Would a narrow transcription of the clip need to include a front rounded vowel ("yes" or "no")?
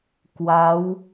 no